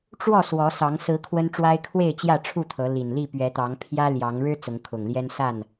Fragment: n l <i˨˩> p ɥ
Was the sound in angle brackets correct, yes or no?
no